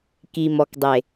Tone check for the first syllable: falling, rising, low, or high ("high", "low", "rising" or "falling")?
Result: low